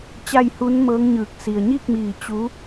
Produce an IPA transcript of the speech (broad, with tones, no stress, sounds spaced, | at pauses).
t͡ɕ a˥˨ j h u˧˥ n m ɤː˧˥ ŋ ɲ ɯː˧˩ k̚ s i˩ ə̯ ɲ iː˥˨ k̚ m iː˧˩ t͡ɕ u˧˥